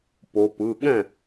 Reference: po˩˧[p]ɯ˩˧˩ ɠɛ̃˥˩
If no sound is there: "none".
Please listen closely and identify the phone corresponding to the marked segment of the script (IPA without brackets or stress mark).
p